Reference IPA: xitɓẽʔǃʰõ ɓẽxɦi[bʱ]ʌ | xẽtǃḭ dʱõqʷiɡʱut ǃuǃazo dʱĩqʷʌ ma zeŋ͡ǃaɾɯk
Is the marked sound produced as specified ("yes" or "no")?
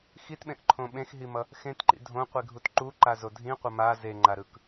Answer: no